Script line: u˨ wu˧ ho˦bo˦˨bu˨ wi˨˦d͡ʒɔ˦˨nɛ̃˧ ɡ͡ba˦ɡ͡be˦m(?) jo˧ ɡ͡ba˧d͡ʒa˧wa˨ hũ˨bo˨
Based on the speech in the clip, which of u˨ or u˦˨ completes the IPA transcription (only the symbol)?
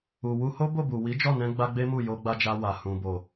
u˦˨